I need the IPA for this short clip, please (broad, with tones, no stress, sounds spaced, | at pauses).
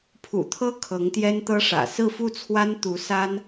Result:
pʰ ṵ˨˩ t̪ʰ ɤ˥ kʰ ɤ˧˥ ŋ t̪ j ɛ˥ n t̪ ɤ˥ ʂ ä̰˨˩ s ɹ̩˥˧ f u˥˩ t͡sʰ w a˥ n t̪ u˧˥ s a˥ n